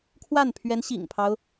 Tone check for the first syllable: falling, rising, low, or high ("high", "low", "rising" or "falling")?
falling